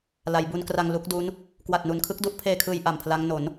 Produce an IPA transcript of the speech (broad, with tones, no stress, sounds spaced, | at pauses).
l a˩˦ j b u˧ n k r a˧ ŋ l u˦˥ k̚ d u˦˥ n | k w a˨˩ t̚ n u˩˦ n kʰ ɯ˦˥ k̚ d u˦˥ ʔ pʰ eː˧ kʰ ɯː˧ j ʔ a˨˩ m pʰ l a˦˥ ŋ n o˩˦ n